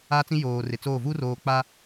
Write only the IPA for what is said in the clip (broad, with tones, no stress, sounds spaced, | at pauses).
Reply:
a˦ t͡s ĩ˦ j oː˨ r ɪ˨ t͡s oː˦˨ v u˦ r oː˨ k͡p a˦